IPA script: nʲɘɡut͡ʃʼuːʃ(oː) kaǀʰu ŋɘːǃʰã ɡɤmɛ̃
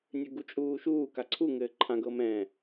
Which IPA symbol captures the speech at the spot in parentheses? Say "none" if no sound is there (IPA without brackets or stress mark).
uː